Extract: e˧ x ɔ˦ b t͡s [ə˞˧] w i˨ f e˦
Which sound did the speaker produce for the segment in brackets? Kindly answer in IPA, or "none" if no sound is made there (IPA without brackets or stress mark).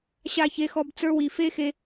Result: ə˞˧